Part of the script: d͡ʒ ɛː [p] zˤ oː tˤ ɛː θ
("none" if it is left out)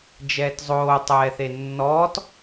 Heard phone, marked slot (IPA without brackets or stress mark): t